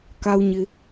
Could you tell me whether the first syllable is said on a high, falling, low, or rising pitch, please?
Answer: low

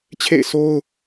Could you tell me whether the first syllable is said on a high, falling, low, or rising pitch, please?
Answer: falling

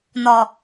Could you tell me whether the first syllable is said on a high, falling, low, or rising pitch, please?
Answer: low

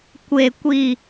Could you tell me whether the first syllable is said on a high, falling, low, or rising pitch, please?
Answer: low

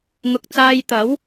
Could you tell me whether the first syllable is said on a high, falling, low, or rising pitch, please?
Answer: low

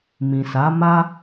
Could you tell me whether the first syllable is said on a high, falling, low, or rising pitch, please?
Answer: low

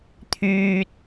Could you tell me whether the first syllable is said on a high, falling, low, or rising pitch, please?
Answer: high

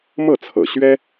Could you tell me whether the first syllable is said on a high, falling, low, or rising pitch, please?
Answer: falling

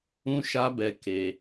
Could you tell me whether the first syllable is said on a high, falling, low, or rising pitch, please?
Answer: high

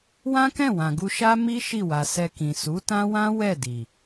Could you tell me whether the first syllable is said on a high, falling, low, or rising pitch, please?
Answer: high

